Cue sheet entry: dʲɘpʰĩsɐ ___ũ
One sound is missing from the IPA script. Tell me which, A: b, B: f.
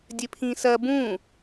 A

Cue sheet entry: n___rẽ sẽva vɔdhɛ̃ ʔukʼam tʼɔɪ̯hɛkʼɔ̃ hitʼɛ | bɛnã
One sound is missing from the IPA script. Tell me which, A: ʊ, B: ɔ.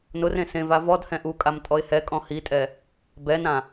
A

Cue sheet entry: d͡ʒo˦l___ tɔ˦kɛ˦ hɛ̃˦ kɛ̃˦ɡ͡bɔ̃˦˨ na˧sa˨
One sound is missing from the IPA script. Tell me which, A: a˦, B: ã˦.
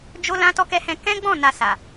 B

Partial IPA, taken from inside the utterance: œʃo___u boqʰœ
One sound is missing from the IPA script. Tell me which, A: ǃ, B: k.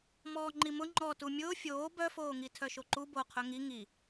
A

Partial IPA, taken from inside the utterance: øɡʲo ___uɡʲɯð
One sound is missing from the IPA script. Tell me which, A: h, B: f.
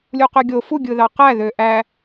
B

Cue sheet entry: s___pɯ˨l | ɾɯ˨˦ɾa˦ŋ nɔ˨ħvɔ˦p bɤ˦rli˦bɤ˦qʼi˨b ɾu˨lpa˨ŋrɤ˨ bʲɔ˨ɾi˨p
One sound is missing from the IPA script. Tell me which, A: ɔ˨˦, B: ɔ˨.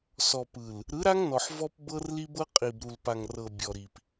B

